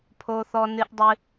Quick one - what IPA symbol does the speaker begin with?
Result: pʰ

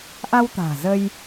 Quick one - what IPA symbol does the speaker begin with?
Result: ʔ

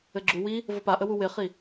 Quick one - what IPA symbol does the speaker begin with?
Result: ɘ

